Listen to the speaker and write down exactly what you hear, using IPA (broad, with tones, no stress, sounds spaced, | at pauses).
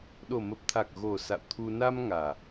ɗ o˨˩ m ə˨˩ p̚ t̪ʰ a˨˩ k̚ ɣ o˨˩ s a̰˧˨ w t̪ʰ u˧ n a˧ m ŋ aː˨˩